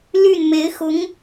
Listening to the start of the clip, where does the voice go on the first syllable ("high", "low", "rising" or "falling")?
falling